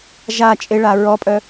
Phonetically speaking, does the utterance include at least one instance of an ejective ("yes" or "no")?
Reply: yes